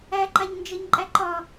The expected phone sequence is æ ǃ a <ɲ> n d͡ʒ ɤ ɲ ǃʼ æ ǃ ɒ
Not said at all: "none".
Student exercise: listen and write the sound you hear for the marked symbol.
ɲ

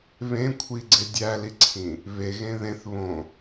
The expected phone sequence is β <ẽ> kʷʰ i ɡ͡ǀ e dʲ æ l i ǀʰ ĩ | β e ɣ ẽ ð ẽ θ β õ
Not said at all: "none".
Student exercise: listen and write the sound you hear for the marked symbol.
ẽ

